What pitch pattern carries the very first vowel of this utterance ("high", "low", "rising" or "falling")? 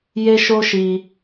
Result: high